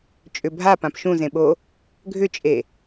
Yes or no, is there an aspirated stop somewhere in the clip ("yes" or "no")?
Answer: no